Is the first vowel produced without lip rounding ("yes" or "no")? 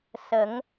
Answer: yes